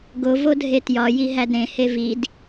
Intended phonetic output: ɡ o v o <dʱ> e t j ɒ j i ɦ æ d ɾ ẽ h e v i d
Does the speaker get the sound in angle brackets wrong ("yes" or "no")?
no